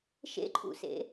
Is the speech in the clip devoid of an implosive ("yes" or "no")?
yes